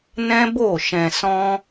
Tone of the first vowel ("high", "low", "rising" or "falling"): high